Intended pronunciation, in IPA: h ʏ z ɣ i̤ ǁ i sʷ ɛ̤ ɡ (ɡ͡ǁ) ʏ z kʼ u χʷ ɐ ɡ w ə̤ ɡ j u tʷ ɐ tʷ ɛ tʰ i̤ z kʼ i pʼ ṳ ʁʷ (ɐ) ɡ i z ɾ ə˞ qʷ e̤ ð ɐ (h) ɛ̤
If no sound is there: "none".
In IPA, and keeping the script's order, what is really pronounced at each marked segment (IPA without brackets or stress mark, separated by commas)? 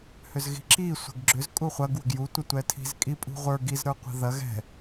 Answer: ɡ͡ǁ, ə˞, ɣ